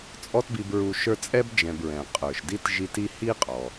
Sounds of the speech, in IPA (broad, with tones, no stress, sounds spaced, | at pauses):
t͡sʼ ɔ˦ t b i˨ b ɹ u˨ ʃ ə˞˦ t͡sʼ ɛ˥ b d͡ʒ ɛ̃˨ b ɹ ɛ̃˩ qʼ ə˞˩ ʃ d i˥ t ʒ i˦ t i˥ h i˥ qʼ ɔ˩